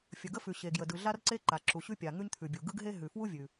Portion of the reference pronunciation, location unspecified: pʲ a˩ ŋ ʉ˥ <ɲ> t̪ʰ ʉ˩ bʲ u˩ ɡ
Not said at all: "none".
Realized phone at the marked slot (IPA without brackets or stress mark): ɲ